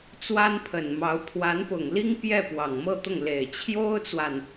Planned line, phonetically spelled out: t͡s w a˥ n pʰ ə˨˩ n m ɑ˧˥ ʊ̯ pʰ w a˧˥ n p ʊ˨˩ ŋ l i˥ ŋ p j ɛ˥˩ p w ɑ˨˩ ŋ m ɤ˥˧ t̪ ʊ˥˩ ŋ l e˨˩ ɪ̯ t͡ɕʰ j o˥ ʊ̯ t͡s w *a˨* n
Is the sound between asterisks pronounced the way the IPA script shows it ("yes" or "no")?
yes